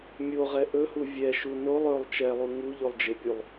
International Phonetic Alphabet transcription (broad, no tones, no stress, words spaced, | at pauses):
mʲoʁɛ ʔɵhu vʲɛʃu nolˠ ɵlˠ t͡ʃɛlˠu ŋu ʎolˠd͡ʒɪpʲulˠ